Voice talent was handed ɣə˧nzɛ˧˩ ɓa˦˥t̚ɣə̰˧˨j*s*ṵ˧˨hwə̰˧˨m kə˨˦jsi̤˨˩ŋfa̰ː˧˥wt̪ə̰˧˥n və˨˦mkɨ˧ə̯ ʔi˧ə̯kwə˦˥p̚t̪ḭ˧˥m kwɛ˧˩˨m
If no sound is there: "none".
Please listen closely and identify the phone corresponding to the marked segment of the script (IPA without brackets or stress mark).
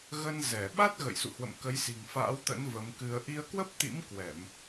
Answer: s